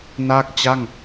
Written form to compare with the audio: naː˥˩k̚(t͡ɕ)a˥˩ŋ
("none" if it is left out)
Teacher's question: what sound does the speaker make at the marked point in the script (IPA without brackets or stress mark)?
t͡ɕ